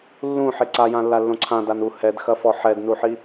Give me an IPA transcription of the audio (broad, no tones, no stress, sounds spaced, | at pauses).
lː ũ ħ e ǀ a j ã lː a lː õ ǀʰ ã d a n u h ɛ d x ɐ f ɔ ħ ɛ d n u ħ i